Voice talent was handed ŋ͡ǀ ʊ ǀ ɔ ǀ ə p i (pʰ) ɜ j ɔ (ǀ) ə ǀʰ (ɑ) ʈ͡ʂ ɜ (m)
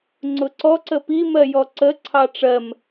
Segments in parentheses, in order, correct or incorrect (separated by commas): incorrect, correct, correct, correct